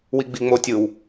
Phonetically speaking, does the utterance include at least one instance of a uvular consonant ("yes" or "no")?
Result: no